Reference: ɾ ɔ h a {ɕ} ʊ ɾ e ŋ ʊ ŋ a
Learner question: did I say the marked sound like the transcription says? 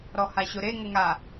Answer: yes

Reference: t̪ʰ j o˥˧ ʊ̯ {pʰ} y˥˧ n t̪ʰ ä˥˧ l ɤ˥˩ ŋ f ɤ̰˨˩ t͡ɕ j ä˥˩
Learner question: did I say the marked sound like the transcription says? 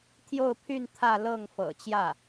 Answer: yes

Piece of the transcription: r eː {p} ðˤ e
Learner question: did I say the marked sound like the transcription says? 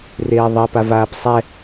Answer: no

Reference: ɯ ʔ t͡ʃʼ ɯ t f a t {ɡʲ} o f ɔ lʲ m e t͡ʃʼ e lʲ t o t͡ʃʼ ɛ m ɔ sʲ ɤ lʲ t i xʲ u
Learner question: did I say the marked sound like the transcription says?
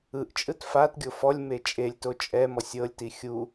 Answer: yes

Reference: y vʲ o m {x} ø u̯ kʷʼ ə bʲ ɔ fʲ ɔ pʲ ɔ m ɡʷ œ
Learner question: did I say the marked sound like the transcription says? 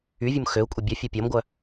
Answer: yes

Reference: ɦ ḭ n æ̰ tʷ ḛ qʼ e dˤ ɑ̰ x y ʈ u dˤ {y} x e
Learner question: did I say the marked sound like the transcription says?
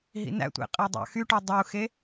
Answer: no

